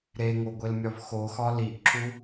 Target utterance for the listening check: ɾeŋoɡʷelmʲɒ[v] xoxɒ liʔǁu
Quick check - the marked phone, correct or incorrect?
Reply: correct